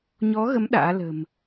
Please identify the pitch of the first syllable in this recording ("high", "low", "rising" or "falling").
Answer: rising